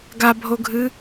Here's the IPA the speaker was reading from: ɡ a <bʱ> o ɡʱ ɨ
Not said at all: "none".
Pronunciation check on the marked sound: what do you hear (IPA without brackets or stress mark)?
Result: bʱ